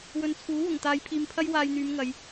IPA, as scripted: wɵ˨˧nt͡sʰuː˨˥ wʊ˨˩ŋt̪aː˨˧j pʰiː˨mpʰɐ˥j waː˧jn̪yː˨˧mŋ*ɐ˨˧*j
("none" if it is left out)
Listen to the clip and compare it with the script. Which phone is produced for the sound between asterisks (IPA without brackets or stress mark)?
ɐ˨˧